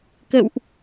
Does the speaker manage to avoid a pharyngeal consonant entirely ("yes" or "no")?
yes